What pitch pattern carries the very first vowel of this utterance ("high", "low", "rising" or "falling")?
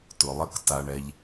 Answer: low